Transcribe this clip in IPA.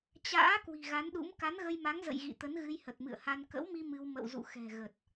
t͡ɕ a̰ː˧˥ k w i̤˨˩ ɣ a˨˦ n ɗ ṵ˧˥ m k a˨˦ n ɣ ə˧ j m a˨˦ ŋ z ə̰˧˨ j ɣ ḭ˧˨ t̪ ə˨˦ n ɣ ɨ˧ j h ə˨˩ t̚ m ɨ̰˧˨ ə̯ h a˧ n k ə̰˧˥ w m i˧ m ɨ˧ w m ə̰˧˨ w z ṵ˧˨ x ɛ̤˨˩ ɣ ə˨˩ t̚

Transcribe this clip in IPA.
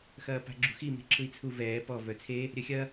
x ɐː p a̤ ɡ͡ǁ ṳ x i m e̤ ǁʰ ɯ i̯ t͡sʰ u v ɛː p ɔ v œ t͡sʰ e | ɾʲ œ xʲ ɐ

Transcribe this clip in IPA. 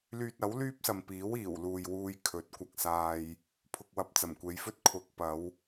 l yː˧ t̚ ɐ˨˥ w l yː˥ p̚ s ɐ˨ m p iː˨˥ w iː˨˩ w l uː˨ j w uː˧ j kʰ ɵ˨˥ t̚ kʷ ɐ˧ k̚ s aː˧ j | pʰ ʊ˨ k̚ w ɐ˨ p̚ t͡s ɐ˨˩ m kʷ e˨˧ j f ɵ˥ t̚ kʰ ʊ˨˥ k̚ p ɐ˨˧ w

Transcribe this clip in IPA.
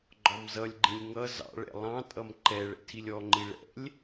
ɡ͡ǃ ɔ m z ʌ lʲ ɡ͡ǃ ĩ lʲ ŋ ʌ z ɑ̰ ɭ ɛ̰ lˠ ɑ̃ tʼ ʌ m ǃ ɛ ɭ ɛ̰ tʰ i lʲ ɔ ŋ͡ǃ i ɭ ɛ̰ lʲ

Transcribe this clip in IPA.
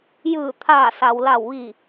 j ɯː˧˩ t̪ʰ aː˧˩ s a˩ w l a˧˩ w ʋ i˧˩

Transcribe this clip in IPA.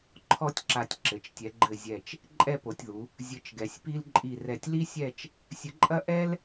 ǃʰ ɔ˥ tʲ ǁ a˧ tʲ ǁ ɘ˩˧ t͡ʃ tʲ ɛ˩˧ ɡ͡ǃ ɘ˧˩ zʲ ɛ˧˩ t͡ʃ | ǃʼ ɛ˥˧ p o˩˧ tʲ ð u˩˧ | zʲ ɘ˧ t͡ʃ ɡ ɛ˩˧ sʲ p i˥ l ǃʼ i˧˩ r ɛ˧˩ tʲ l i˥ sʲ ɛ˥˧ t͡ʃ | sʲ ɘ˧ ǃʼ ɐ˥ ʔ ɛ˥ l

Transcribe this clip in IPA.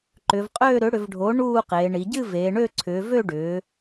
ǃ ʏ˩˧ v qʼ øː˥˧ ɾ ʏ˩˥ ɽ ʏ˩˧ v ɖʱ o˩˥ ɳ uː˥˧ q eː˩˧ ɳ i˩˧ ɟ ɨ˥˧ v eː˩˧ ɳ ø˥˧ ǀʰ ʏː˩˧ v ø˥˧ ɖ ʏː˩˧

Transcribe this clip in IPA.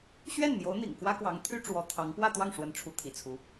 ɕ ɥ ɛ˥˩ n m j o˧˥ ʊ̯ n̪ ḭ˨˩ ŋ k w ä˥ k w ɑ˧˥ ŋ t̪ʰ y˥ ʈ͡ʂ w ɔ˧˥ t̪ʰ ɑ˧˥ ŋ p w ä˥˧ t̪ w ɑ˥˩ ŋ ʂ w ə˧˥ n ʈ͡ʂʰ u˧˥ t̪ʰ ḭ˨˩ t͡sʰ u˧˥

